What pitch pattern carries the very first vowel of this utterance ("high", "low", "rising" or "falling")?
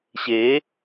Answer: rising